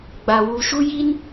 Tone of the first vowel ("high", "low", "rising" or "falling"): low